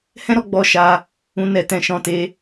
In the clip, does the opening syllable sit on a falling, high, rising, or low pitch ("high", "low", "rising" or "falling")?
high